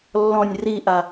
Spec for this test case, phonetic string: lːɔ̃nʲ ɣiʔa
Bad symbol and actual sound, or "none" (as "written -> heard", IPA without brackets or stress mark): ɣ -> r